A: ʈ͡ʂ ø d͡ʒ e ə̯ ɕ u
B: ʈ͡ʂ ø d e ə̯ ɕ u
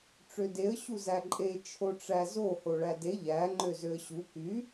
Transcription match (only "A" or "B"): B